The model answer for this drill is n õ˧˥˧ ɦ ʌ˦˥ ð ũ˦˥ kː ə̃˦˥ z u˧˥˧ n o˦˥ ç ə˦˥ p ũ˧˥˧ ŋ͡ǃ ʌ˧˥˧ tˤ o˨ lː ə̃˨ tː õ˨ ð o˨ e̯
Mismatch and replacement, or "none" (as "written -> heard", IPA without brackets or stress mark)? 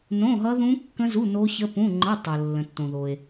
none